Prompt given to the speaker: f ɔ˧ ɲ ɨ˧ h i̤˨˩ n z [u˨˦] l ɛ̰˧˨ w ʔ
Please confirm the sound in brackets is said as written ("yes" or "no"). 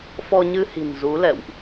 yes